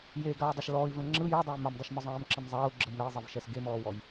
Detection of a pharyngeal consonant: absent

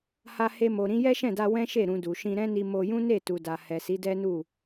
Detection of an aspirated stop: absent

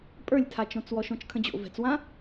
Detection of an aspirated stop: present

